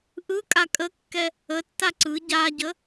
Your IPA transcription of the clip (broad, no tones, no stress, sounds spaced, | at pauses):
ʔ ɯ kʼ a kʼ ə kː ɛ | ə tː a ǀ ɯ ɟ a ɟ ə